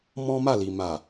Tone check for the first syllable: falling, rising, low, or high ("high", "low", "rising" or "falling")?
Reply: high